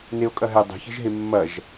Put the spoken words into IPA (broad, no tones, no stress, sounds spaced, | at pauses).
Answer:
n e o̯ kʼ ɐ ɦ ɛ dˤ i̤ ç ɛ̤ ʒ ɦ e mː ɐ ʒ